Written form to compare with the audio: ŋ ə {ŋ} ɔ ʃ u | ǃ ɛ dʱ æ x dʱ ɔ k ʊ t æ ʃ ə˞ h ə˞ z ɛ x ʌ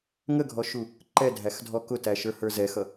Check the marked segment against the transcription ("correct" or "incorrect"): incorrect